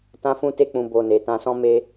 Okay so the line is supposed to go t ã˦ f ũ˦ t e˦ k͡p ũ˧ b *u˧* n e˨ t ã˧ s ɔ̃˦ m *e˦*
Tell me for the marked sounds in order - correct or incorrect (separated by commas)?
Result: incorrect, correct